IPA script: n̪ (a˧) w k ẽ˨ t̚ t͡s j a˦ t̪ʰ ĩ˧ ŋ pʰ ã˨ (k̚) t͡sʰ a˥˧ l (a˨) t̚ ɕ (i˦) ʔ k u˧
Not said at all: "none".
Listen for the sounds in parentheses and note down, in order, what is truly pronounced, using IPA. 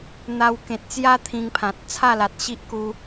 a˧, t̚, a˨, i˦

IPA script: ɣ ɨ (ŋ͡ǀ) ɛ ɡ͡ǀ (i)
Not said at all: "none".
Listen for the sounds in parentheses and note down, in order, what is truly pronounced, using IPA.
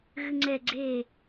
ŋ͡ǀ, e

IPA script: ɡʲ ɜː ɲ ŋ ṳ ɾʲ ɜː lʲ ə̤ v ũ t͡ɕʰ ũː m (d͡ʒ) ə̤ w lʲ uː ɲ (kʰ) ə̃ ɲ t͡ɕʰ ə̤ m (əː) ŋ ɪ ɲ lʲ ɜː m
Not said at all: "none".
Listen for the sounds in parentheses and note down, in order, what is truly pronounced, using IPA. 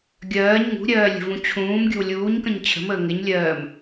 ɡʲ, k, əː

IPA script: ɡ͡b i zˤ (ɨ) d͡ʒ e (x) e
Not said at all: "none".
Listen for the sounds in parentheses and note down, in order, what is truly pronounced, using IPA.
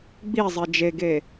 e, ɡ

